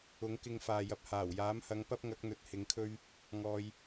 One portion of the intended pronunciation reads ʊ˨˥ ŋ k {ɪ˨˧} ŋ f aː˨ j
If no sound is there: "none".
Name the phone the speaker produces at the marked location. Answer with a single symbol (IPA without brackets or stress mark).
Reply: ɪ˧